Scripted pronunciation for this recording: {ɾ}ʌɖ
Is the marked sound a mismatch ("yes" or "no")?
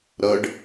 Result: no